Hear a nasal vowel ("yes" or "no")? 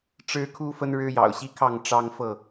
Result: no